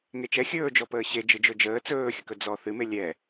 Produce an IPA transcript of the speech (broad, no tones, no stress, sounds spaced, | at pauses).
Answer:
ŋ e t͡ʃ ɛ xʲ ɵː d͡ʒ ɔ p əː ɕ e d͡ʒ ɯ d͡ʒ ɵ d͡ʒ əː t͡s ɵː xʲ ə k ɵ d͡z ɔ θ ɨ m e lʲ ɛ